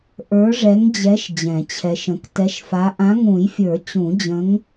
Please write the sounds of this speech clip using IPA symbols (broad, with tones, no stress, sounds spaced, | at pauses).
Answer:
ʔ ə˞˨˦ ʐ ɛ˨˦ ŋ d͡ʑ ɛ˨˦ ʃ d͡ʑ ɛ̃˨˩˦ t͡ɕʰ ɛ˨˦ ʃ ə̃˨˦ k t ɛ˨˦ ʃ f a˨˦ ʔ ã˨˦ ŋ ũ˨˩˦ j fʲ ə˞˨˩˦ t͡ɕ ũ˨˩˦ d͡ʑ ə̃˨˦ ŋ